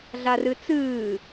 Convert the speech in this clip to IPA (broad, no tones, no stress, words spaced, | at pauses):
ɮarɨt͡sɨː